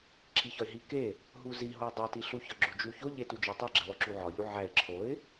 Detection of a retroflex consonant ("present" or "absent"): absent